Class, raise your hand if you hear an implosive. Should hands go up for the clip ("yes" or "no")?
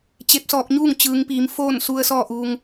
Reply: no